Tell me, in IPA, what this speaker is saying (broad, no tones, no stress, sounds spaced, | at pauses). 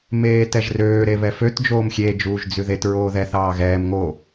m eː t ɛ ʒ r øː ɾ e β ɛ f ø t d͡ʒ oː m xʲ e d͡ʒ uː ʒ d͡z ʉ ð e t ɹ oː ð ɛ θ ɑː ɣ ɛː m ŋ o